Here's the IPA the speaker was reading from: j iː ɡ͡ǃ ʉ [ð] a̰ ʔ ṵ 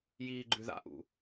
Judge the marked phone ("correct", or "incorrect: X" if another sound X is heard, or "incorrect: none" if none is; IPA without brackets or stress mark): correct